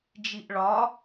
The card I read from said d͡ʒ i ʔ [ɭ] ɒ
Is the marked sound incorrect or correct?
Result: correct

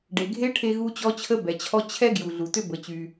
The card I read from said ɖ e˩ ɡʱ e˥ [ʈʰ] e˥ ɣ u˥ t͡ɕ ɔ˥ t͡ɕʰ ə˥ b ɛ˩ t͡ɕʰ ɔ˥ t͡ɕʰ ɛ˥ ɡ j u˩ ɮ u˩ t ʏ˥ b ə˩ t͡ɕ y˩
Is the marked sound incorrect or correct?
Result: correct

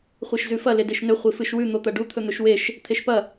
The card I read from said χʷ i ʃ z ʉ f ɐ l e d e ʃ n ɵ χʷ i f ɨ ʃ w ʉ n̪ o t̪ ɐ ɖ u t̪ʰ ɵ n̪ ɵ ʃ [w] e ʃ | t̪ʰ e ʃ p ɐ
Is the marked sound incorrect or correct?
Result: correct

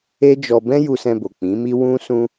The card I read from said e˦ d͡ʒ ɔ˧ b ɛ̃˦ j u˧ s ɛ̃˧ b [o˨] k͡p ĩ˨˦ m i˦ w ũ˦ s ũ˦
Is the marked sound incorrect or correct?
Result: correct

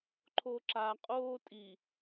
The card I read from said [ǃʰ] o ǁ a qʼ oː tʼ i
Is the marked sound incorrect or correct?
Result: correct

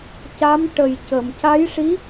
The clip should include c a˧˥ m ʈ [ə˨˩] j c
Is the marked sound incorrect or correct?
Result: correct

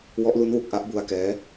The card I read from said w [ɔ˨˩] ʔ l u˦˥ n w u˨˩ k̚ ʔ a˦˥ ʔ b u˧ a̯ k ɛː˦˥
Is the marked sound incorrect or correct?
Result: incorrect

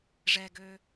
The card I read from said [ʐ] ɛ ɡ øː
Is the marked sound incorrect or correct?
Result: correct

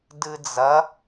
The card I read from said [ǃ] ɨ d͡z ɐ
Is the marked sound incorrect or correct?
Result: incorrect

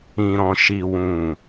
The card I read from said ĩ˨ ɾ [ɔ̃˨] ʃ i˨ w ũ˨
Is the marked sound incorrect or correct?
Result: correct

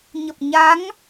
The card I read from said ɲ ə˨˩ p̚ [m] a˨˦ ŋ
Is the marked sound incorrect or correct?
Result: incorrect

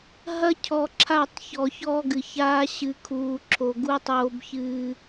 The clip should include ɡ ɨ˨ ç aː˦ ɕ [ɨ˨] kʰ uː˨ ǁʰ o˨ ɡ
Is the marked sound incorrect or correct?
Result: correct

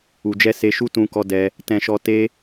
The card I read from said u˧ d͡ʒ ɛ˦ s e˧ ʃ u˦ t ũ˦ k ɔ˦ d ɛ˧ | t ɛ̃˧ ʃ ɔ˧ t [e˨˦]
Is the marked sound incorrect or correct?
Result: incorrect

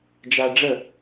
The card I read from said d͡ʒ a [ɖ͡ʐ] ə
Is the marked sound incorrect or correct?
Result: correct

